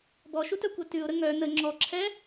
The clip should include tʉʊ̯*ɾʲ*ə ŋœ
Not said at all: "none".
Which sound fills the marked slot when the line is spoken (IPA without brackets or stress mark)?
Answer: ɾ